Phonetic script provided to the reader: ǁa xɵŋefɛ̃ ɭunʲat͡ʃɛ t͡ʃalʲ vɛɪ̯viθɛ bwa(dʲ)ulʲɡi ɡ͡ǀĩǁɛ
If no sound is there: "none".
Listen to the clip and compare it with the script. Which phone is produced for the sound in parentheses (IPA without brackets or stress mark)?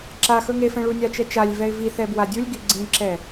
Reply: dʲ